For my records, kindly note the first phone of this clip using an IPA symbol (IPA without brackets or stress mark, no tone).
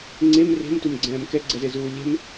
ŋ͡ǀ